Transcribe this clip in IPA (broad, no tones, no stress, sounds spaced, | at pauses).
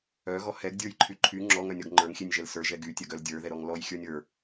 œ ɣ ɔ h ɛ ɡ dʲ ə˞ j ǃʰ y ǃʰ y ŋ͡ǁ ɔ ŋ œ nʲ ɔ ɡ ŋ͡ǃ ə˞ ŋ xʲ e nʲ ʒ ɛ l s ə˞ ʒ ɛ ɡ y tʲ œ ɡ œ l dʲ ə˞ ð ɛ ɾ ɔ ŋ l ɔ j xʲ ə˞ nʲ ə˞